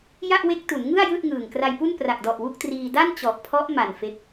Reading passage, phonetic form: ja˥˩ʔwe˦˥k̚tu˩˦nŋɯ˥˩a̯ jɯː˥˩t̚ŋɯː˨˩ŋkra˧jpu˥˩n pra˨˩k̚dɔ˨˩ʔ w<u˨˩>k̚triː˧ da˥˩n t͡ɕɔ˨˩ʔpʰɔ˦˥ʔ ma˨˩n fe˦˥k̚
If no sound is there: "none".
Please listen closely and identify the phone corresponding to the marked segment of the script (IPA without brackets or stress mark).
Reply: u˥˩